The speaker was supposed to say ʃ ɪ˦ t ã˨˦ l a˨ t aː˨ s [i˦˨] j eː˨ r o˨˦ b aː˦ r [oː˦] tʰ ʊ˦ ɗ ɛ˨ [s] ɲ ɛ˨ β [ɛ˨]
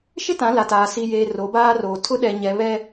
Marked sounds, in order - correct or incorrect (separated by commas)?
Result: incorrect, incorrect, incorrect, incorrect